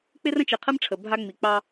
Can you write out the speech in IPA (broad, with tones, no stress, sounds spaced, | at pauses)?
k͡p ɪ˦ r ə̃˦ t͡ʃ ɪ˨ qʰ ə˦ m ʈ͡ʂʰ ə˨ bʱ a˦ ŋ͡m i˨ k͡p ɑ˦